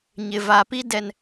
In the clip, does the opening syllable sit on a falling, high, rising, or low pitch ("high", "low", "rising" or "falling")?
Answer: low